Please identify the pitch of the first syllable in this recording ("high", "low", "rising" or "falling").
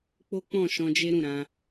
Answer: high